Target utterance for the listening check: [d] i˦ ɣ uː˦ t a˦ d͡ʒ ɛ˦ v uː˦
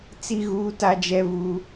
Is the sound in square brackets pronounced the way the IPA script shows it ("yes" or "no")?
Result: no